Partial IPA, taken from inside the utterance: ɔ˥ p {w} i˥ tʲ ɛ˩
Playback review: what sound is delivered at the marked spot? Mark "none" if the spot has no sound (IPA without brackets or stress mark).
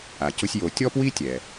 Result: w